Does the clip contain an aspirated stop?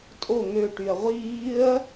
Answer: no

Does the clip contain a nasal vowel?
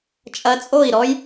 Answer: no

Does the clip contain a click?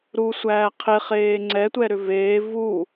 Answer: yes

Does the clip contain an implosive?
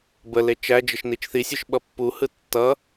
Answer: yes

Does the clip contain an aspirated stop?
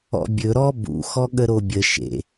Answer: no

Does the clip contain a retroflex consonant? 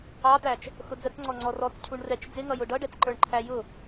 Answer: yes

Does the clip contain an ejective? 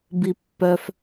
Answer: no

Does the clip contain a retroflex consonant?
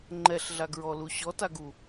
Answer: no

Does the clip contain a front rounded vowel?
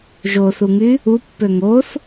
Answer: yes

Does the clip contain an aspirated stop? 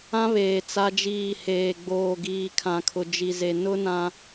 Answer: yes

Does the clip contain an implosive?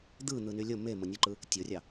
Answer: no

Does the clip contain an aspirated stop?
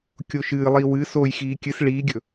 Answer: no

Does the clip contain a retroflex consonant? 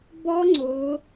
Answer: no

